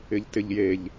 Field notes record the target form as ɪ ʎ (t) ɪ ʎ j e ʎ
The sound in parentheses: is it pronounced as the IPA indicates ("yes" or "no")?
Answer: yes